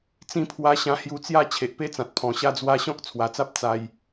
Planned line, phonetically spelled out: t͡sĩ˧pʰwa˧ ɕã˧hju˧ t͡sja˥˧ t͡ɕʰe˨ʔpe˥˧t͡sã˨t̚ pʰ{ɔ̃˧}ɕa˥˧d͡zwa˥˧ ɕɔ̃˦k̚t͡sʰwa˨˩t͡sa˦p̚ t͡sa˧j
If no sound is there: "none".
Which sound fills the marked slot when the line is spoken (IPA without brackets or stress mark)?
ɔ̃˨˩